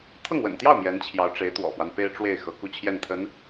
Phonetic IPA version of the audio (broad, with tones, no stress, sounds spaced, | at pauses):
t̪ʰ ɤ˥˩ ŋ w ə̰˨˩ n t̪ j ɑ˥˩ ʊ̯ m j ɛ˧˥ n t͡ɕʰ j ɑ˧˥ ʊ̯ ʈ͡ʂ e˧˥ ɪ̯ t̪ w ɔ̰˨˩ f w a˦ n p e˥ ɪ̯ ʈ͡ʂ w e˥˩ ɪ̯ x ɤ˧˥ k u˥˧ t͡ɕʰ j ɛ˥˩ n t̪ʰ ə˧˥ n